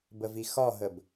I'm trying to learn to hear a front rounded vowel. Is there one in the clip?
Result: no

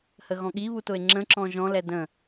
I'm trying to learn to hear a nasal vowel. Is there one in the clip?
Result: yes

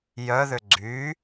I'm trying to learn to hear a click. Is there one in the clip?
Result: yes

